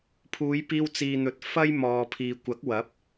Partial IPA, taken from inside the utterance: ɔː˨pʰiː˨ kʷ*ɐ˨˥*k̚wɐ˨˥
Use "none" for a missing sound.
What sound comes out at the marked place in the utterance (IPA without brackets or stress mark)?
ɐ˨˥